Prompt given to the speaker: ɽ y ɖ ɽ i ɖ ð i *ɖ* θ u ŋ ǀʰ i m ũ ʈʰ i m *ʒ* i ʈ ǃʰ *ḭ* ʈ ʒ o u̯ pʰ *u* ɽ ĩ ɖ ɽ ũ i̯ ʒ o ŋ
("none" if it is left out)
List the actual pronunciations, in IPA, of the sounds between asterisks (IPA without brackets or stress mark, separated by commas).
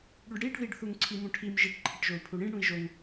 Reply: ɖ, ʒ, i, u